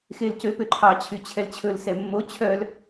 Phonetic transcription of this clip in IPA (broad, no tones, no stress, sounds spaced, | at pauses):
x e l c ø p ø ǃʰ ɑ t͡ɕʰ y t͡ɕʰ ɛ l t͡ɕʰ ɵ l s ɛ mː o t͡ɕʰ œ l